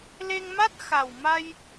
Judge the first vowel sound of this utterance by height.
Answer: mid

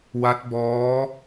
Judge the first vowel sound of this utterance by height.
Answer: low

